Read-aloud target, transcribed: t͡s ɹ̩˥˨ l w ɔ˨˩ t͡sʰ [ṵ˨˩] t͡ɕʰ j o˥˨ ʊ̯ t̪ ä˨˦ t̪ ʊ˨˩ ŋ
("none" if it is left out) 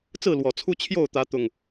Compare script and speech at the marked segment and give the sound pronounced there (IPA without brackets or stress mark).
u˦